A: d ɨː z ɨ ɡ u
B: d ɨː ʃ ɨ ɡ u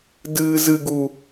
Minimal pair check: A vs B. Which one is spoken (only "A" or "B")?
A